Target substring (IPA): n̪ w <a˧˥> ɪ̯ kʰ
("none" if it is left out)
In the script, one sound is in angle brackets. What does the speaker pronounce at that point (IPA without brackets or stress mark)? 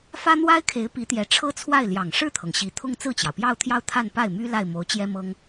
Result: a˥